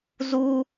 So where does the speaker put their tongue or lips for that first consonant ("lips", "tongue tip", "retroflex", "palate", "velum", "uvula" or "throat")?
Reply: tongue tip